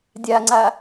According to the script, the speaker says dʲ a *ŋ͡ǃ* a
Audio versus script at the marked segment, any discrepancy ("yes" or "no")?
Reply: yes